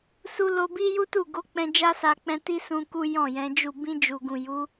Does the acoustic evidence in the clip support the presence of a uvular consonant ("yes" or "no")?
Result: no